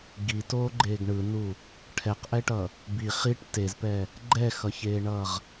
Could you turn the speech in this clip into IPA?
ɡ i t oː ɡ͡ǃ eː ɡ ɳ ɯ n u | ʈʰ ɛ q ʔ ɛ ʈ ʌ | b i χ i ʈ t e z p ɛ | ɡ͡ǃ ɛ x ʌ ç eː ɳ ʌː ʁ

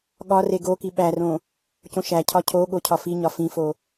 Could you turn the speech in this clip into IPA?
ɠ ɒ r e ɡ o k i ɓ æ r õ | c õ ʃ æ cʰ ɒ cʰ o ɠ o cʰ ɒ f i ɲ ɒ f ĩ f o

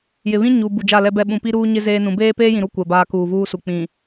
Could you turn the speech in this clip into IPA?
j ɪ˨ β ĩ˦ ɲ u˨ b u˨ d͡ʒ a˦˨ l ɛ˦ b ɛ˦˨ ɓ ũ˨ p i˦ ɾ uː˦ ɲ ɪ˦ z eː˦ n ũ˨˦ b eː˦ p eː˦ j ĩ˨ ɾ u˦˨ kʷ ɛ˨ b aː˦ k uː˨ v uː˦ s u˨ k͡p ĩ˨

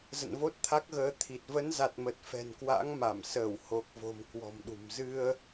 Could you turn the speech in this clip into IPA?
z ə̰˧˨ n v o˦˥ t̚ t̪ʰ a˦˥ k̚ ɣ əː˨˦ t̪ʰ i˨˩ t̚ v ə˨˦ n z a˨˩ t̚ m ə˨˩ t̚ f ɛ̤˨˩ n k w a̰˧˥ ŋ m a˧˩ m s əː˧˩ w h o˨˩ k̚ v o̤˨˩ m k w ɔ̤˨˩ m ɗ ṳ˨˩ m z ɨ˧ ə̯

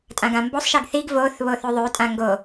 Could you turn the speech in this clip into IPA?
tʼ ã ɡ ã m b o sˤ ʃ i ɡ θ i ɡ v o θ β o θ ʉ ðˤ ʉ tʼ ã ŋ ɡ o

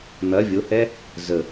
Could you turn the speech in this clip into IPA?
n̪ ɐ vʲ o h ɛ | z ə

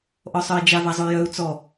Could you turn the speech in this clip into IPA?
ʔ ɔ sˤ œ i̯ d͡ʒ a v a zˤ o y̯ j œ u̯ t͡s ɔ

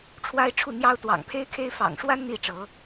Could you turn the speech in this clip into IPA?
ʈ͡ʂʰ w a˦ ɪ̯ ʈ͡ʂʰ u˥˨ n̪ j ɑ˦ ʊ̯ t̪ w ɑ̰˨˩ ŋ pʰ e˦ ɪ̯ kʰ e˦ ɪ̯ f ɑ̰˨˩ ŋ ʂ w a˦ n n̪ i˥˨ ʈ͡ʂ ɤ˨˦

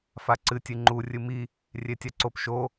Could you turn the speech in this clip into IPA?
f a ǀ ɨ tʲ ɨ ŋ͡ǃ u rʲ ɨ m i | rʲ e tʲ a ǀ o p ʃ o

